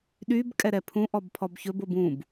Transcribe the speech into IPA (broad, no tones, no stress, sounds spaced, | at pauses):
ɗ y b kʼ ɛ ɾ ɛ pʰ ũ ʔ ɔ b pʰ ɔ b ç ɵ b o b ũ b